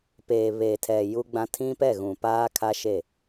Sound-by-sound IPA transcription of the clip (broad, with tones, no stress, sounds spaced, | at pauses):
p eː˨ β eː˨ tʰ ɛ˨ j u˦ ɡ͡b ã˦ tʰ ĩ˦ p ɛ˦˨ ɣ ũ˨ p aː˦ kʰ a˦ ʃ e˦˨